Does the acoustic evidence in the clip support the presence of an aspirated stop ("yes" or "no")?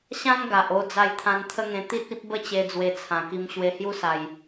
yes